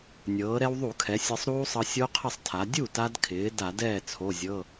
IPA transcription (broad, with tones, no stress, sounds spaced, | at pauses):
nʲ ɤː˩˧ ɾ ɛ˧ w ðˤ u˧˩˧ kʰ ɛ˩˧ sʲ ɤ˧ sˤ ɾ uː˦˥ sˤ ɤ˧ sʲ o˦˥ qʰ ə˥˩ sˤ tʰ a˩˧ dʲ u˥˩ t a˧ d kʰ ɪː˩˧ d a˧˩˧ d ɛː˥˩ t͡sʰ o˩˧˩ zʲ ɤ˩˧˩